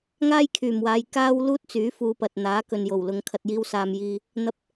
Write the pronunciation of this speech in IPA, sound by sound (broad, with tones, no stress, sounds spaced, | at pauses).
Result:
ŋ aː˥ j kʰ yː˨˩ m w aː˨˧ j k aː˥ w l uː˥ t̚ t͡s yː˨˥ f uː˨˧ p ɐ˨ t̚ n̪ aː˨˥ k ɵ˨ n j o˨˩ w l ʊ˨˧ ŋ kʰ ɐ˨ t̚ j iː˧ w s aː˨ m j iː˧ | n̪ ɐ˨ p̚